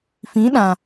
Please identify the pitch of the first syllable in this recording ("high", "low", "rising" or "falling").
rising